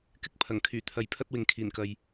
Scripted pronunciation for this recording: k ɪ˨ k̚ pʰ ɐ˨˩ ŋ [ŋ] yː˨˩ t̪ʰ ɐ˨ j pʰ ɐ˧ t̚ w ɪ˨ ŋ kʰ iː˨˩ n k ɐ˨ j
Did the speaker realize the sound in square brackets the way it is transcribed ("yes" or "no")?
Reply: no